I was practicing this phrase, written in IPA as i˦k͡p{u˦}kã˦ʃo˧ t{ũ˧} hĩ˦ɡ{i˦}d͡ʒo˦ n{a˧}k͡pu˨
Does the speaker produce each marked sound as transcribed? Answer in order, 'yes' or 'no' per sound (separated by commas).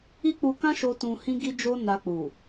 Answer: no, yes, yes, yes